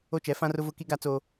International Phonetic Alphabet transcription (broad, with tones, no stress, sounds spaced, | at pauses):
o˦ t͡ʃ ɛ˨˦ f ã˦ r ʊ˦ v ʊ˦ k i˦ ɡ a˦ t͡s o˦